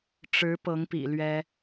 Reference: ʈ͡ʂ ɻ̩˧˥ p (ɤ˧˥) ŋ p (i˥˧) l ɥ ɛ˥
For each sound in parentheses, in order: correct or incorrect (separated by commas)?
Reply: correct, incorrect